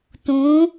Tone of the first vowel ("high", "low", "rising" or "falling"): rising